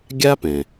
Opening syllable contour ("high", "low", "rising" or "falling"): high